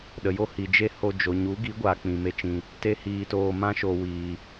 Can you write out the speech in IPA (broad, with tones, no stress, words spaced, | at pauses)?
ɗə˨jo˦hi˨ d͡ʒe˦ho˧ d͡ʒo˨ ɲu˨˦ɡi˨˦ ɡʷaː˧k͡pĩ˨me˦t͡ʃĩ˧ | te˧hiː˨toː˨ mã˦ʃo˨ wiː˨